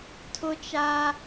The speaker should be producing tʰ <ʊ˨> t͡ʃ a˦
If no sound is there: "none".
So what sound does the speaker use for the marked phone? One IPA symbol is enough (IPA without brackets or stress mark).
ʊ˦